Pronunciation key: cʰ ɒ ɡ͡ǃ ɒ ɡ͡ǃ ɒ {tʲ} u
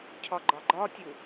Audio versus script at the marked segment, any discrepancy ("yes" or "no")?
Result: no